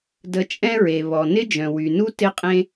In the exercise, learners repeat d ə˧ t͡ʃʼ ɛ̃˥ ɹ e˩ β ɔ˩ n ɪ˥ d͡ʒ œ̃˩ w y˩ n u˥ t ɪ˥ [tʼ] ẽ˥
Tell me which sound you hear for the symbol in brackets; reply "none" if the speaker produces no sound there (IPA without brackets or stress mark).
qʼ